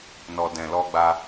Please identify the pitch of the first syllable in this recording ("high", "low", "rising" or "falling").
low